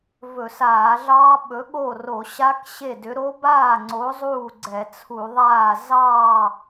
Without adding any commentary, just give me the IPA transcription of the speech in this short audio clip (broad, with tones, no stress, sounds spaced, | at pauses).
v ɵ˧˩˧ s aː˧˩˧ ɮ ɑː˦˥ ɓ ɵ˨˥ ɠ o˥˩ r o˧˩˧ ɕ a˦˥ k ɕ e˥˩ d ʏ˨˥ ɾ o˦˥ b aː˥˩ ŋ͡ǀ o˨˥ zˤ uː˥˩ ɡ͡ǀ ɛ˧˩˧ t͡sʰ u˧˩˧ ðˤ aː˥˩ z ɑː˥˩